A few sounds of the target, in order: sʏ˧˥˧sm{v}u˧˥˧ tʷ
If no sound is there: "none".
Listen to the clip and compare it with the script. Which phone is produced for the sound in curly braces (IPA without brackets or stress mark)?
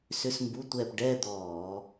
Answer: b